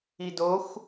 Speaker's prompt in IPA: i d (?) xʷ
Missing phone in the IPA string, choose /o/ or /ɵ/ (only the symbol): o